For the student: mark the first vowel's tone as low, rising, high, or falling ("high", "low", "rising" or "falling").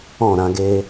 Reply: falling